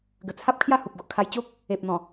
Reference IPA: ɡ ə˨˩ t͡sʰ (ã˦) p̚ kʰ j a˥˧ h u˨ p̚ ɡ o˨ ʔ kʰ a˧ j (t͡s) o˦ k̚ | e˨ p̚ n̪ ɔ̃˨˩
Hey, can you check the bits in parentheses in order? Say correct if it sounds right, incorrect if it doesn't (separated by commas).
incorrect, incorrect